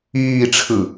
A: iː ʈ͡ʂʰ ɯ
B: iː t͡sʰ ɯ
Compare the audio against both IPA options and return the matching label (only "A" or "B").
A